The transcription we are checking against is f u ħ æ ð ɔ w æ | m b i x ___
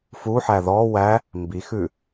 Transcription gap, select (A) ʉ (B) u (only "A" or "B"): A